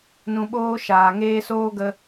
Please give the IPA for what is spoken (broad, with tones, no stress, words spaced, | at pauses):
nũ˧ɓoː˦ʃaː˨ŋeː˦ soː˦ɡə˧